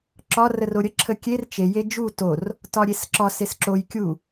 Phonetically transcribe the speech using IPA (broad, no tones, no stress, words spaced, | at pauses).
ǁɒrəro ɾʲə ǁʰəkʲer t͡ʃe jed͡ʒu tor | tɒɾʲesǁɒs esǁoj kʲu